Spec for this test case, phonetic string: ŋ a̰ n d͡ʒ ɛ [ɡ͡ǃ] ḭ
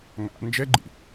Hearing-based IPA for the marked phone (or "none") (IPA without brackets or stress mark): ɡ͡ǃ